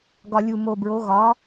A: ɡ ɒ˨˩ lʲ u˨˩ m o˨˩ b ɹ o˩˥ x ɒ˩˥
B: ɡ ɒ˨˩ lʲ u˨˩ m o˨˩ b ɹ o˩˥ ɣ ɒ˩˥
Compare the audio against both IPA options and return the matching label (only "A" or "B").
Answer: B